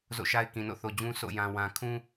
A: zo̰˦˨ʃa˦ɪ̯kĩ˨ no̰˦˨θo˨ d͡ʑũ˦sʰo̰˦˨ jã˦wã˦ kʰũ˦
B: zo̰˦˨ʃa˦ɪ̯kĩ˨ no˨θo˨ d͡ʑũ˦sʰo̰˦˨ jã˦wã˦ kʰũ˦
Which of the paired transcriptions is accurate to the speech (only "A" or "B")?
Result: A